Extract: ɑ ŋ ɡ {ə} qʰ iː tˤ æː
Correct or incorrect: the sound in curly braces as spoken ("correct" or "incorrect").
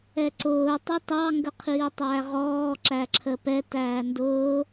correct